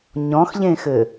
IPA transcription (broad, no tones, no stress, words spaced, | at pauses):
ɲɔ̃xʎẽxɘ